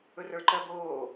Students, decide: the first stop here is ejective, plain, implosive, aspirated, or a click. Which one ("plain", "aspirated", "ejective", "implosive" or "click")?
click